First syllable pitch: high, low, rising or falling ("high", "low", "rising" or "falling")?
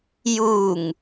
low